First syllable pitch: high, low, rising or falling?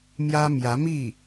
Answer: high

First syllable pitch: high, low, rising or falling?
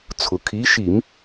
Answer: low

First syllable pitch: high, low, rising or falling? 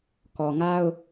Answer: low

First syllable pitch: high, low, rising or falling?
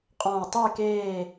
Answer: low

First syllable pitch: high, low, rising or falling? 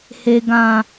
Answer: low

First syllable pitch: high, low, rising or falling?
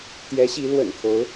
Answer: rising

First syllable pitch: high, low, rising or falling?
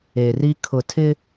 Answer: low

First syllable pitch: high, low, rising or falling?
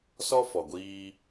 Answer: high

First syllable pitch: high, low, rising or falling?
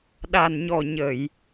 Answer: low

